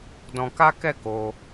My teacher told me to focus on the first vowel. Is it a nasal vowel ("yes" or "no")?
yes